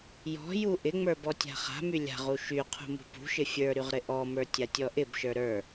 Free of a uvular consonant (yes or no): no